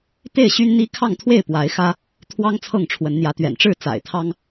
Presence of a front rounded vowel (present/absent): present